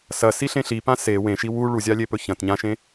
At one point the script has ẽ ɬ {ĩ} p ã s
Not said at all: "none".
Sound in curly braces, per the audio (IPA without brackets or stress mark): i